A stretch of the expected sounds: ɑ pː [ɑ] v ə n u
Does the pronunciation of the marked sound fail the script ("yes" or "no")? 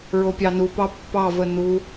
no